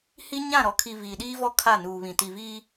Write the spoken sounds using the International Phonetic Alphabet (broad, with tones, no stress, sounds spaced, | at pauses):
h i˦ ɲ ã˦˨ ɾ ɔ˨ kʰ i˨ v iː˨ ɗ iː˦ v ɔ˦ kʰ a˦˨ n uː˨ β ĩ˨ t i˨ v iː˦